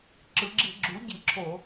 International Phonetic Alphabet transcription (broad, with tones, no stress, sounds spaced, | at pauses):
ǁ ɯ˩˧ ɡ͡ǁ i˧˩˧ ɡ͡ǁ u˩˥ ɟ i˧˩˧ ǁʰ o˧˩˧